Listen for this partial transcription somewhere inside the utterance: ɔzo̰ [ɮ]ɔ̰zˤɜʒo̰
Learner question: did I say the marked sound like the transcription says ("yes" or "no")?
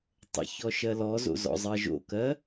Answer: no